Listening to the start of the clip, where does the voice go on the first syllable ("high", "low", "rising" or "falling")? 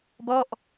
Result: falling